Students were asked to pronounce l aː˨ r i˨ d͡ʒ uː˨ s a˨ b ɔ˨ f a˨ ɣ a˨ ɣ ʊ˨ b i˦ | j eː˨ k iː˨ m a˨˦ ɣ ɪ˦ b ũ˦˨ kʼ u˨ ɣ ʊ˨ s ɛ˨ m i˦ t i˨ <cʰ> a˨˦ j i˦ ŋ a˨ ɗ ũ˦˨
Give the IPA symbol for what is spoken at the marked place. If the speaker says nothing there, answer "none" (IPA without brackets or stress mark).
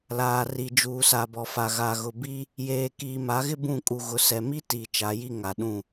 t͡ʃ